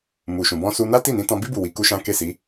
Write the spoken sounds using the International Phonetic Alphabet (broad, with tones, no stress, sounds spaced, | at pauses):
m u˨ ʃ ũ˨ b ɔ̃˧ s u˧ n a˦ t i˦˨ n ĩ˨˦ t ɔ̃˧ b i˦ b u˦˨ w i˧ k u˦ ʃ ã˦ k e˦˨ s i˨˦